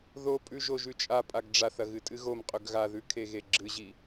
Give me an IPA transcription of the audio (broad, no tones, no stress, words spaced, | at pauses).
ðopʼʉ ʒoʒʉt͡ʃʼapʼaɡ ɖ͡ʐaθɐ ɣɨtʼɨɣomqʼɵɡ ɣaðʉ kʰeɣeɡ͡ǁɨʑi